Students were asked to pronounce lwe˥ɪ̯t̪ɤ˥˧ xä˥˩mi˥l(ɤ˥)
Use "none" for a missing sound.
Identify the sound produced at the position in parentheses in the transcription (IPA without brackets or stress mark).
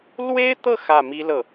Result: ɤ˥˩